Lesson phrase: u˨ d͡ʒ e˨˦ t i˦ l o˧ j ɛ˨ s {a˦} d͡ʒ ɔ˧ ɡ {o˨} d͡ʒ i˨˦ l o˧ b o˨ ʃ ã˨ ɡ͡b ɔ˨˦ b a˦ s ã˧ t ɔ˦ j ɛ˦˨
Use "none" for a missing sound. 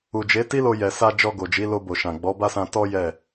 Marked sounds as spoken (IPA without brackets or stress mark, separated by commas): a˧, o˨